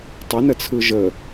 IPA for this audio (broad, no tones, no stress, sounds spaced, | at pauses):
tˤ ə n ə t͡sʰ ɯ ʒ ə